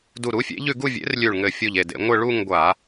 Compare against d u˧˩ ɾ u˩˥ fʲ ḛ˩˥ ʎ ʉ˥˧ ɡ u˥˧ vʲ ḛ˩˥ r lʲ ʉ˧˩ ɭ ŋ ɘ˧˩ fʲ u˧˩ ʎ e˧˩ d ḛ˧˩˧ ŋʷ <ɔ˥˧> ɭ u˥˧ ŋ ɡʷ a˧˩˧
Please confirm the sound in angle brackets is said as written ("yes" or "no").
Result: no